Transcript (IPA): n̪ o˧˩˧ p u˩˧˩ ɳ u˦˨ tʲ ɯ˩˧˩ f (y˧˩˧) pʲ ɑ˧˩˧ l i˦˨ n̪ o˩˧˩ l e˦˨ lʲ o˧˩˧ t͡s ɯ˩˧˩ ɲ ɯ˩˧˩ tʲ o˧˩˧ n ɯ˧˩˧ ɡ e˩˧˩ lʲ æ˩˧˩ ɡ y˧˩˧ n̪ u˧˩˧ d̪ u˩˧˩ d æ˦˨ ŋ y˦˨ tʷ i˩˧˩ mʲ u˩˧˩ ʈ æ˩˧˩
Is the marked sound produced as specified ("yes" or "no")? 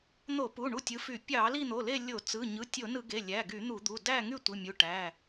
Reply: yes